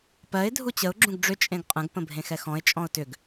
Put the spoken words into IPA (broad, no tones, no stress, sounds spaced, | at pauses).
p ɜ ɪ̯ dʱ u t͡ɕ ə ʊ̯ ɡ͡ǁ ũ ɡ ɖ͡ʐ ʏ t͡ʃʼ ẽ ɡ qʼ ə̃ ɡ p ə̃ bʱ ẽ x ɛ x ɔ̃ ɪ̯ t͡ʃʼ ɔ̃ ʊ̯ t ʏ ɡ